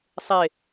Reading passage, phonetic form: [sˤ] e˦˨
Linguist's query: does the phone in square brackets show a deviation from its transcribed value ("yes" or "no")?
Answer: no